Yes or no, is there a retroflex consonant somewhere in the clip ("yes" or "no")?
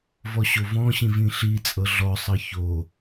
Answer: no